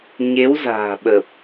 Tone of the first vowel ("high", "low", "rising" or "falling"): rising